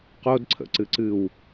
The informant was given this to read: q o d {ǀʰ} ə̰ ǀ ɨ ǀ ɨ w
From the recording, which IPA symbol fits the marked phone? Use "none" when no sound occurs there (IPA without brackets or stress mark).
ǀʰ